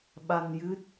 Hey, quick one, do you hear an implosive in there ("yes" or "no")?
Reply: yes